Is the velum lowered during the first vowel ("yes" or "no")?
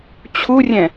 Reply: no